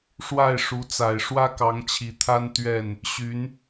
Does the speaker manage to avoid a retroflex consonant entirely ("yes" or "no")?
no